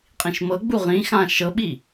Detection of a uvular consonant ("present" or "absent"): present